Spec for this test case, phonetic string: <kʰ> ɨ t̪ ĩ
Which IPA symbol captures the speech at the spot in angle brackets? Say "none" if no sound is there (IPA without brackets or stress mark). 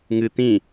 ŋ